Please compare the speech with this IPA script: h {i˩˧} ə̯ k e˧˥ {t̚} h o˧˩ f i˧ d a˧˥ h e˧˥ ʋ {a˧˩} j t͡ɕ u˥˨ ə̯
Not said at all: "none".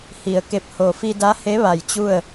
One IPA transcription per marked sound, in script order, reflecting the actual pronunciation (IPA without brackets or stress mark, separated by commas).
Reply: i˩˧, p̚, a˧˩